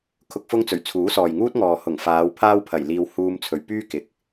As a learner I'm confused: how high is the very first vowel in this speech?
high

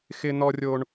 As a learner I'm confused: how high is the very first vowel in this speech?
high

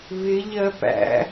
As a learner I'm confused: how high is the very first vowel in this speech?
high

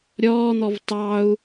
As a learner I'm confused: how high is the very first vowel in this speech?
mid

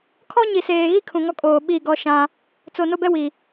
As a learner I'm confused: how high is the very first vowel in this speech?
mid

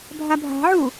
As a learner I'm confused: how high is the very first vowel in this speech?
low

